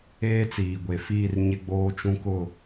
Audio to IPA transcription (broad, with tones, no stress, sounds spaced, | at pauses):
eː˦ t͡s iː˨ ɡʷ e˨ f iː˦˨ r ɲ ɪ˦ ɡ͡b oː˦ t͡ʃ ũ˦ k ʊ˦˨